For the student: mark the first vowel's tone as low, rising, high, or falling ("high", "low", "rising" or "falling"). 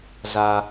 low